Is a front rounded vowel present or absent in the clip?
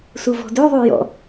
present